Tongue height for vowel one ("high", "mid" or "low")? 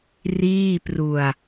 high